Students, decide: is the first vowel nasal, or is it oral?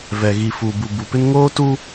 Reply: oral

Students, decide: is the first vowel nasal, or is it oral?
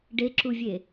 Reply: oral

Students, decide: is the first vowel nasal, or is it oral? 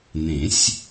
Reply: nasal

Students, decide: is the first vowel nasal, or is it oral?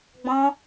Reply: nasal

